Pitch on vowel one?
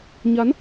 rising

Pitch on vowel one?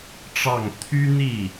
falling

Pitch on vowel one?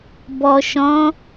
low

